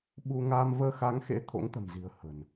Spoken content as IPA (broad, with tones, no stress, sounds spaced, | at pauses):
ɓ u˧ ŋ aː˧ m v əː˧ x a˨˦ ŋ x ḛ˧˥ t̪ʰ o̰˧˥ ŋ t̪ ə̤˨˩ m z i̤˨˩ ə̯ h ə̤˨˩ n